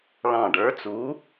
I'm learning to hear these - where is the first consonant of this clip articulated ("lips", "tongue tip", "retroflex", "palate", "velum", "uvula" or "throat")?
retroflex